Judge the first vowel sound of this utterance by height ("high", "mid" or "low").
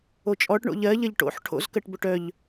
mid